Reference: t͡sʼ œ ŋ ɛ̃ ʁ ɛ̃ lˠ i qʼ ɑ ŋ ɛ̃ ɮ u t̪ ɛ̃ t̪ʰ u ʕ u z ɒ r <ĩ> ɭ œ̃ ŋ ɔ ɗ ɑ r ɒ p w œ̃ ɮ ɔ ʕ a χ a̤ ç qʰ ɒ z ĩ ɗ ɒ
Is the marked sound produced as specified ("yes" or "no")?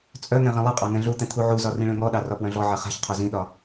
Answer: yes